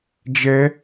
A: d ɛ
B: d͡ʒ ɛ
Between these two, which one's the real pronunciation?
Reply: B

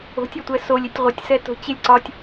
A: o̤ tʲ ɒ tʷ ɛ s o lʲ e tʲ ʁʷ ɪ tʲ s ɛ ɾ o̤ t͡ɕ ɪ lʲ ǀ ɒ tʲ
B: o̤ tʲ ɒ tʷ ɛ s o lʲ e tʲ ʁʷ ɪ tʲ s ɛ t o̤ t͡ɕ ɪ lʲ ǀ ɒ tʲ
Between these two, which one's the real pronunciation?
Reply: B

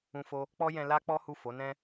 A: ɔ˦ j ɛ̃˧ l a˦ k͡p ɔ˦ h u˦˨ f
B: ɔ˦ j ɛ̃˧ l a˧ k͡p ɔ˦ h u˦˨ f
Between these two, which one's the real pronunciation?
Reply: A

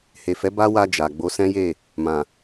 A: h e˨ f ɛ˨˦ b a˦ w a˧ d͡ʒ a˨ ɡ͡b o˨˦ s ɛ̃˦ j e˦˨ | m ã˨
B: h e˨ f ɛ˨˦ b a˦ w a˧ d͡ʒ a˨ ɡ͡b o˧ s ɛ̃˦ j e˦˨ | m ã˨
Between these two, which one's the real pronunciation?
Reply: A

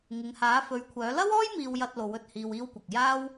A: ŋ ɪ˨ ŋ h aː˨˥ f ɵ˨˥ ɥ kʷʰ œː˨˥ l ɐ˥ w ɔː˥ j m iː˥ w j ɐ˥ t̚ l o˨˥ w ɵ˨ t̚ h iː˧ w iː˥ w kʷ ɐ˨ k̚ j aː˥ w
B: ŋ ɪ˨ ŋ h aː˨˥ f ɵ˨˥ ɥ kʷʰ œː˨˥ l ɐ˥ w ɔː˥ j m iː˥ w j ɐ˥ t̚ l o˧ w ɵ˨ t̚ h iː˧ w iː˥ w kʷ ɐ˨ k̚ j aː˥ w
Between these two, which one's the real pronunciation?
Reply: A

